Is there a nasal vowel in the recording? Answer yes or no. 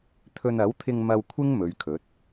no